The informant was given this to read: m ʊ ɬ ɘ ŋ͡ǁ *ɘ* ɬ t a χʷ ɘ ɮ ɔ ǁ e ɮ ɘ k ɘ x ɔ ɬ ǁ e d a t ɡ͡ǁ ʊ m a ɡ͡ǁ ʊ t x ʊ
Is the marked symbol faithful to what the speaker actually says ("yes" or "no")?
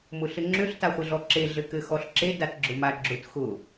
no